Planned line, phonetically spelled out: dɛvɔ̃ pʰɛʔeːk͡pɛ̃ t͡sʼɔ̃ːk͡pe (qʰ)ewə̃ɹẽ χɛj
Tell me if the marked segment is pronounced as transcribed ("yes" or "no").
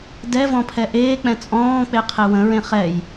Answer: yes